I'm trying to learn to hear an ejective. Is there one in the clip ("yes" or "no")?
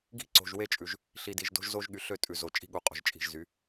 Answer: yes